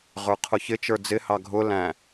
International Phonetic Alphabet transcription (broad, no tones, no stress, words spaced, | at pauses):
ʁə˞qʰʊçɪ t͡ʃə˞d͡zɪ hɑɡʱʊ læ̃